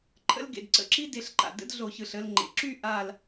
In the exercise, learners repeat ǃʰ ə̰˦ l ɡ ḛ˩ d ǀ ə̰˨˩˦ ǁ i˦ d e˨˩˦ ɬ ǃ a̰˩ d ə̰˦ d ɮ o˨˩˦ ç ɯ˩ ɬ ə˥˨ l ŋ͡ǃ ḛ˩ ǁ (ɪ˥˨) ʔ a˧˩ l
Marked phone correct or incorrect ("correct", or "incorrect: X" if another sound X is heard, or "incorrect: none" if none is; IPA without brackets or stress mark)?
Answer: incorrect: y˥˨